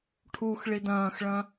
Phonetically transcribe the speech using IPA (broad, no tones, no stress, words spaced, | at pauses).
ʈʰux ɭidɐ̃ːxɭɐ̃